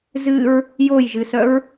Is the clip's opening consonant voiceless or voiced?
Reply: voiced